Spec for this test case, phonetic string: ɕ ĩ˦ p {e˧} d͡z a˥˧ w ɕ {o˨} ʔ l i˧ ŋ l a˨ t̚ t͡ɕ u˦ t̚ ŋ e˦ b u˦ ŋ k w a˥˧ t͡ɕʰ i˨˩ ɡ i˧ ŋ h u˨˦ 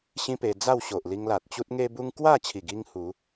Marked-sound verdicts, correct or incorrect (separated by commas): correct, correct